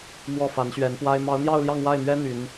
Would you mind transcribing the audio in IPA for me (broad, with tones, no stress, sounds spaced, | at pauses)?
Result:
m w ɔ˥˩ f a˧˥ n ɕ ɥ ɛ˧˥ n p w a˥ ɪ̯ m ɑ˧˥ ʊ̯ n̪ j ɑ˥˧ ʊ̯ l j ɑ˥˧ ŋ w a˥˩ ɪ̯ m ɥ ɛ˥ n̪ y˧˥ n